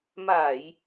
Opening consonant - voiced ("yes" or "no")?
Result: yes